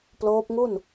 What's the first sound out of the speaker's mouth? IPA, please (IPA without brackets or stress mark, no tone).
p